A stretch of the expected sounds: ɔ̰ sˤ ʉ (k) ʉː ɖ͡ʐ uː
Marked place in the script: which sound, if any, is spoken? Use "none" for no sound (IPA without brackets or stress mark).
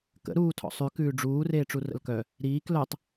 k